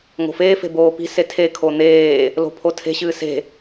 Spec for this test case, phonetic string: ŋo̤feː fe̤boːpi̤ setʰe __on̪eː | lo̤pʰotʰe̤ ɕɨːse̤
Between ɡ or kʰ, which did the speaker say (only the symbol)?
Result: kʰ